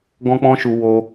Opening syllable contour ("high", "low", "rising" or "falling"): high